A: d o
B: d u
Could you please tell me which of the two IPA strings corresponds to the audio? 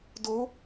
A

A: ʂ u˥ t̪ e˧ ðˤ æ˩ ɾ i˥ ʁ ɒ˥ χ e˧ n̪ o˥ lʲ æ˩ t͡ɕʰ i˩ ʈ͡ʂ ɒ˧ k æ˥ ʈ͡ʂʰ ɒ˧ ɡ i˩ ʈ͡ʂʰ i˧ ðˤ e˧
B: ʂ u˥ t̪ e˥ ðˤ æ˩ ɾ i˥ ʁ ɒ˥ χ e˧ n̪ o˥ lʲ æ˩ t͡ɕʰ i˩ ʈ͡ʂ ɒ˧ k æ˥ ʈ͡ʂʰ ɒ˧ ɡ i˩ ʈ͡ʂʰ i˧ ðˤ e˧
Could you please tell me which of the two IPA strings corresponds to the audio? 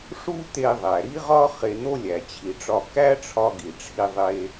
A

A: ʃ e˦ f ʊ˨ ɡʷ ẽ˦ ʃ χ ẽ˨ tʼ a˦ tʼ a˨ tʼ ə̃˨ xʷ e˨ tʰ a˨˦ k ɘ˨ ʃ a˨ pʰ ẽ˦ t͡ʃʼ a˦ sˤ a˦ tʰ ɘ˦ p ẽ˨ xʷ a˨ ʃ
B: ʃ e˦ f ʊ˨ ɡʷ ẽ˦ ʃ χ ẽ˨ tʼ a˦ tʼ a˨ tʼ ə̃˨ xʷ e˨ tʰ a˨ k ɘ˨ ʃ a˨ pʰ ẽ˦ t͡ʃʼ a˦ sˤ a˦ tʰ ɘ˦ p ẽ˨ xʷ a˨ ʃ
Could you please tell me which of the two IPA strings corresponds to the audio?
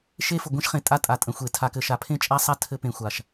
B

